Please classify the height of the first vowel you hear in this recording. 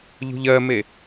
high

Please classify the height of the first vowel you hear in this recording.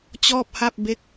mid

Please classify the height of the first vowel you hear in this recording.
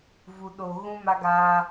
high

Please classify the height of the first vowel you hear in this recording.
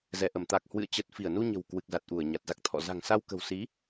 mid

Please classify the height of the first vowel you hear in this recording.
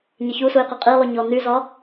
mid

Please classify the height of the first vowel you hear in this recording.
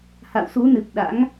low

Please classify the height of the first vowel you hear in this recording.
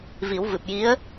high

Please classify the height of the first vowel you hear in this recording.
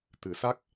high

